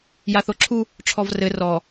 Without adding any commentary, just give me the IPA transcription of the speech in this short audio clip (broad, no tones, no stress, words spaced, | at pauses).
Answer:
jaθoǁʰu | ʈ͡ʂʰɔvrɘ rɔ